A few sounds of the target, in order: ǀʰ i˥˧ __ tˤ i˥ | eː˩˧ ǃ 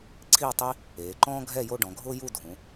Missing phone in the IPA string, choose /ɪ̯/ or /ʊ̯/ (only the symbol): ʊ̯